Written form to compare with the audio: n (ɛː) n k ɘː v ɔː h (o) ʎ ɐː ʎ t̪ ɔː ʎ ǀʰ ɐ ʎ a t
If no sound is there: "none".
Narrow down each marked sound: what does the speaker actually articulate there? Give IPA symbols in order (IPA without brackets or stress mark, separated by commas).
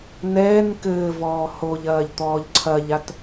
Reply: ɛː, o